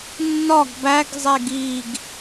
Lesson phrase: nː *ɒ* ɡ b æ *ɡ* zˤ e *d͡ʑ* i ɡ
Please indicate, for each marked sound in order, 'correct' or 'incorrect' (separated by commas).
correct, correct, incorrect